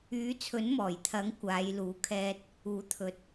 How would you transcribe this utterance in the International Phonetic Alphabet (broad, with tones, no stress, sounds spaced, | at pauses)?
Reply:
yː˨˥ t͡sʰ ɵ˨˥ n m ɔː˨˩ j t̪ʰ ɐ˨˥ ŋ kʷ aː˨˧ j l uː˨˥ kʰ ɛː˧ t̚ | uː˨˥ t̪ʰ ɵ˨ t̚